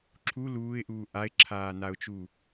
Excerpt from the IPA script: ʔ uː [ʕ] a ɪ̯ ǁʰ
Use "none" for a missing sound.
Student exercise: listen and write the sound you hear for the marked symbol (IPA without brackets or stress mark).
ʔ